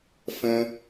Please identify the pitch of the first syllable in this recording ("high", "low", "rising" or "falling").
low